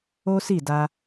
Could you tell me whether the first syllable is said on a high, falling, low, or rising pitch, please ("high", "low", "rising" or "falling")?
high